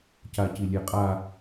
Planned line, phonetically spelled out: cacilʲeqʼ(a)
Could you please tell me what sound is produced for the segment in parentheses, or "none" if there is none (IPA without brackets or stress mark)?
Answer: a